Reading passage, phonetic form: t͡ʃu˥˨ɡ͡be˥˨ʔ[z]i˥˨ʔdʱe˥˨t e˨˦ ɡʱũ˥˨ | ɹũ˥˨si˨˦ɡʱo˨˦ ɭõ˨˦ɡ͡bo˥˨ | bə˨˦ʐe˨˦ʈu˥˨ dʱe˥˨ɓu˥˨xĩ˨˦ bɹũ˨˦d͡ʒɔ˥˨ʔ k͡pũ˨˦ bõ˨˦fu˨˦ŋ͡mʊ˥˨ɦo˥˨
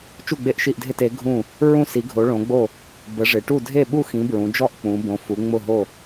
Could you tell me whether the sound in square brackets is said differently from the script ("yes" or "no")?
yes